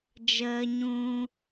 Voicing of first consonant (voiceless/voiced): voiced